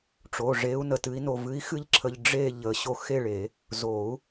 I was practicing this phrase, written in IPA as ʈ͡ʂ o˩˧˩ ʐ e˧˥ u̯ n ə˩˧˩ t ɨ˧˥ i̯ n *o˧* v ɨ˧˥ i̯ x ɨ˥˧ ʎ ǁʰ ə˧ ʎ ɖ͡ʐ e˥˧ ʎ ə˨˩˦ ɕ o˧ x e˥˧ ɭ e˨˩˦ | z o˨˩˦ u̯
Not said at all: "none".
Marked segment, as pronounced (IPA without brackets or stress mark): o˧